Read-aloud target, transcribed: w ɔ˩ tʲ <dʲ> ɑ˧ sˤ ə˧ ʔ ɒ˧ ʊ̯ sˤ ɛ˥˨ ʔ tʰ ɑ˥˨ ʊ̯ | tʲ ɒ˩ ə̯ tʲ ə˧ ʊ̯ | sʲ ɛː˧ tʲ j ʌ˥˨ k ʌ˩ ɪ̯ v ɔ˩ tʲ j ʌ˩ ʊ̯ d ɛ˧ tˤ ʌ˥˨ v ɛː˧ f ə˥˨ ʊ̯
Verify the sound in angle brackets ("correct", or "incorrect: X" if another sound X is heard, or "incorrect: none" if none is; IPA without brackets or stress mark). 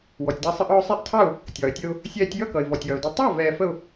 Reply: incorrect: d